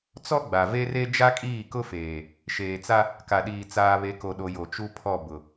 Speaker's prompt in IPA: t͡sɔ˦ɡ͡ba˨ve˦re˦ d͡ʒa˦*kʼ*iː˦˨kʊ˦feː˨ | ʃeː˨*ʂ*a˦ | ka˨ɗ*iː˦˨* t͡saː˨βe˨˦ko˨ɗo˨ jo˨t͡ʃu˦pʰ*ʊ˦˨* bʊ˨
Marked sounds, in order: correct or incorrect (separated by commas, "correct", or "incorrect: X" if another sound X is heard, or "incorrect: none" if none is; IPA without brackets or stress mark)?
correct, incorrect: t͡s, incorrect: iː˨, incorrect: ɔ˦˨